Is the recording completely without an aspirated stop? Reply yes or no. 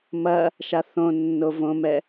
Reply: yes